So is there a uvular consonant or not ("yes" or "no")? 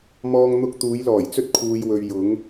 no